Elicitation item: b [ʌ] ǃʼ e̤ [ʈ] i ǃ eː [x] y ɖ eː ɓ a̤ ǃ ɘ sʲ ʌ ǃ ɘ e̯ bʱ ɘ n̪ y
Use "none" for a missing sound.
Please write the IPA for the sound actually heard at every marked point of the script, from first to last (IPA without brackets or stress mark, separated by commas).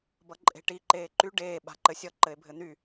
ʌ, ʈ, ǃ